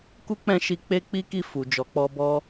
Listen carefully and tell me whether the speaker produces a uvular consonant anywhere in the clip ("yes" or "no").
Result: no